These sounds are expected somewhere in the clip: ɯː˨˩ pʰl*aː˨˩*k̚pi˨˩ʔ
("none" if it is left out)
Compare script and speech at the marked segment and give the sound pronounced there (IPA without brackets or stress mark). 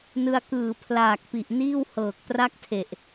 aː˨˩